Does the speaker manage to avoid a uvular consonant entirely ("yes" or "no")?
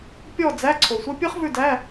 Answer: no